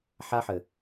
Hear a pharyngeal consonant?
yes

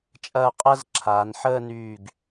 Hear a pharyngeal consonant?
yes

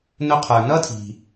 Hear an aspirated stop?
yes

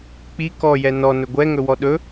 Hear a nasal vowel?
no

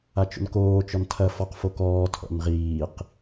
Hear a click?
no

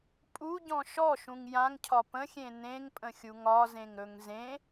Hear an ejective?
yes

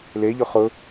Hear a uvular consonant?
yes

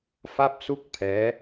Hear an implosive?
no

